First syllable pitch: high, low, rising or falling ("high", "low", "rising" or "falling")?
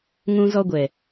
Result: high